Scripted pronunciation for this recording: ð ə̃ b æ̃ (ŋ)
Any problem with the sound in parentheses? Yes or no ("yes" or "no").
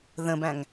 no